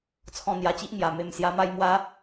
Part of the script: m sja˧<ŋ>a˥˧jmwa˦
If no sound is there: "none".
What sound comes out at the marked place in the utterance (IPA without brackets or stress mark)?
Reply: m